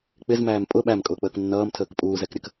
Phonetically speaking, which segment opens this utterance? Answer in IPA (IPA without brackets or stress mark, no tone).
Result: k͡p